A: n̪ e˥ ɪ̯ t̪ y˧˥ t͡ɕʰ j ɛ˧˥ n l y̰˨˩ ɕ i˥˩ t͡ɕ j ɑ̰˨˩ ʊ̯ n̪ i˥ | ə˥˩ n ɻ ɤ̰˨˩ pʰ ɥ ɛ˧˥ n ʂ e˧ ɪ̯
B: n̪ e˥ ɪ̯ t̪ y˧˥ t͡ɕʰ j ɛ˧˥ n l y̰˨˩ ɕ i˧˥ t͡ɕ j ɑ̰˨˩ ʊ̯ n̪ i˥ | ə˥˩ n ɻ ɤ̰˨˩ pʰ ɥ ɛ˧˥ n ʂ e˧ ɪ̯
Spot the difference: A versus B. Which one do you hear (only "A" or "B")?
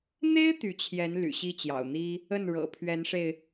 A